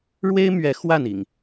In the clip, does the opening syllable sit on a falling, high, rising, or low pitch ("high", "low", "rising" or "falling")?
high